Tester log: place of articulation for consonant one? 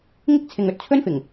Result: velar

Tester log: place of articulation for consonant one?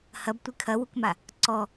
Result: glottal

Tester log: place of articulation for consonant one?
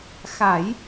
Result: velar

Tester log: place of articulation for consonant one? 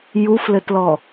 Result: palatal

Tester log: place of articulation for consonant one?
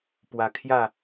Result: labial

